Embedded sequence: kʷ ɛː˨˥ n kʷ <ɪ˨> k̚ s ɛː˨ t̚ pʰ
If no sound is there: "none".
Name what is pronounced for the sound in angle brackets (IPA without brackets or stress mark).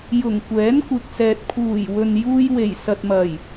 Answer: ɪ˨